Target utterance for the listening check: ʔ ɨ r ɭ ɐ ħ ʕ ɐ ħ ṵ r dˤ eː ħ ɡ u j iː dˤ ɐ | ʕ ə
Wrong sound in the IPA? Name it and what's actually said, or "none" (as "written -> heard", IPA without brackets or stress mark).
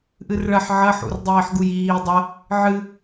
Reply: ə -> ɨ